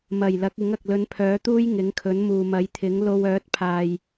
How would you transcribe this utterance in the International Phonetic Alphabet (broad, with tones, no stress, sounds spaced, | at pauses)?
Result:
m ɐ˨˩ j l ɐ˨˥ k̚ ɪ˨˥ ŋ ɐ˨ k̚ l ɵ˨˧ n pʰ œː˨˥ t̪ uː˥ j ŋ ɪ˨˥ ŋ kʰ ɵ˨˥ n m uː˨ m ɐ˨˥ j t̪ʰ ɪ˨˥ ŋ l o˧ w œː˨˥ t̚ pʰ aː˨ j